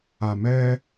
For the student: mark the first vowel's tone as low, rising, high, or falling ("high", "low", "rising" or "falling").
low